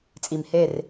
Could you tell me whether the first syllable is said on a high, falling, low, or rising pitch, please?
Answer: low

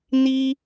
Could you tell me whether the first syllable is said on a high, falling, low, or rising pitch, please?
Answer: high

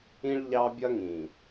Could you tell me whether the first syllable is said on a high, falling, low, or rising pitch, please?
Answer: high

